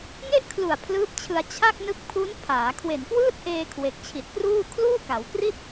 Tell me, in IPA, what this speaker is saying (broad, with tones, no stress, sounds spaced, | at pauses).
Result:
ŋ e˥˩ ʔ kʰ l u˨˩ a̯ pʰ l ɯː˦˥ p̚ t͡ɕʰ ɯ˧ a̯ t͡ɕʰ a˥˩ k̚ n ɯ˦˥ k̚ pʰ u˦˥ n pʰ aː˩˦ kʰ w e˨˩ n k w ɯː˥˩ t̚ ʔ eː˧ kʰ w e˨˩ k̚ t͡ɕʰ i˨˩ t̚ k r uː˥˩ kʰ l uː˥˩ k a˩˦ w k r i˥˩ t̚